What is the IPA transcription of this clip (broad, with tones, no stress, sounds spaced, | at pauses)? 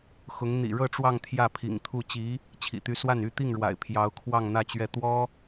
x ʊ˧˥ ŋ n̪ ḭ˨˩ ɻ ɤ˥˧ ʈ͡ʂ w ɑ˥˧ ŋ t̪ʰ j ä˥˩ pʰ ḭ˨˩ ŋ t̪ʰ u˥˩ t͡ɕ i˧˥ | t͡ɕʰ ḭ˨˩ t̪ y˧˥ s w a˥˩ n y˥ t̪ i˥˩ ŋ ɻ w a̰˨˩ ɪ̯ pʰ j ɑ˧˥ ʊ̯ kʰ w ɑ˥˧ ŋ n̪ ä˥˧ t͡ɕ ɥ ɛ˥˩ t̪ w ɔ˥